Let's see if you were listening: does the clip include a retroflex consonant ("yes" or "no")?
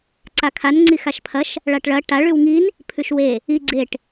yes